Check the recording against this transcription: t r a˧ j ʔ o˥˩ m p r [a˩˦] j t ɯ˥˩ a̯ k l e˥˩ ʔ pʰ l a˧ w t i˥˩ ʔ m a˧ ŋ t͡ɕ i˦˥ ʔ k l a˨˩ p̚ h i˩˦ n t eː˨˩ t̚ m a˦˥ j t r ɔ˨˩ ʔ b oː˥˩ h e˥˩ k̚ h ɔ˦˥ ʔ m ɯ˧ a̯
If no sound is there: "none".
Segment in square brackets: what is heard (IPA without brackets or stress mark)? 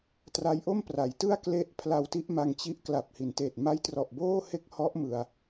a˩˦